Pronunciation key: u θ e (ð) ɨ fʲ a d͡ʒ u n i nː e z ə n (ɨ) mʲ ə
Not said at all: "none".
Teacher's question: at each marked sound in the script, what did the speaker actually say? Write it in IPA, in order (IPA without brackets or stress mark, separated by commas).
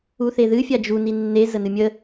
ð, ɨ